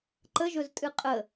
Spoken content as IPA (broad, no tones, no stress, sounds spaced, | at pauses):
ǃ ə ʒ ɵ z tʼ ɨ qʼ ə